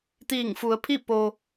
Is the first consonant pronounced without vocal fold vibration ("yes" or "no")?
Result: yes